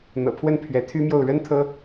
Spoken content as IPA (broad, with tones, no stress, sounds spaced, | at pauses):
n̪ ɤ̰˨˩ pʰ w ə˥˩ n pʰ ɥ ɛ˧˥ t̪ʰ y˥ m j o˥˩ ʊ̯ ɻ ə˥ n t̪ʰ ɤ˥